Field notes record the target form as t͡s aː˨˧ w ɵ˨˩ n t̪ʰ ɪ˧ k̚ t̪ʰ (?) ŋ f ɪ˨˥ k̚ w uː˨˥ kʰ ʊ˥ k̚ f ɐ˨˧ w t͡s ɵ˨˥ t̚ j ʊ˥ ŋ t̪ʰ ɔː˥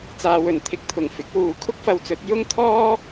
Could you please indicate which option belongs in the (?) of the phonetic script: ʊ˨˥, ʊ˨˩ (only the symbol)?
ʊ˨˩